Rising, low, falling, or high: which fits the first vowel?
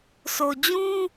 low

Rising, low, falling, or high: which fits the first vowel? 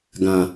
low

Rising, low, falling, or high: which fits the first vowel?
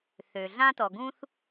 low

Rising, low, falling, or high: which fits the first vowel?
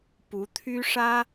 rising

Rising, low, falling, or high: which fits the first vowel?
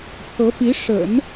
rising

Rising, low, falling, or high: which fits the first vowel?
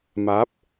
rising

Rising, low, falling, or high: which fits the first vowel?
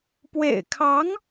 low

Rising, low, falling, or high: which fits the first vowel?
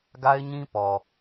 high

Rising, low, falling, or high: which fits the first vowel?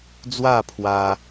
falling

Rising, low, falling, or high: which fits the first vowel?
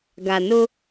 low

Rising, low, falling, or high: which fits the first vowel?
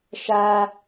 high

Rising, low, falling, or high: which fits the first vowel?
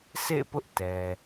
falling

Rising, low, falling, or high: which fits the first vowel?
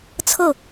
falling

